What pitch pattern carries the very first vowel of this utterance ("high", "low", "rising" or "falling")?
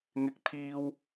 high